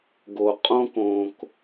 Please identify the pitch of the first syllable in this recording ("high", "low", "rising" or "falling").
low